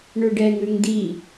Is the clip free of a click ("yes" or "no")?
yes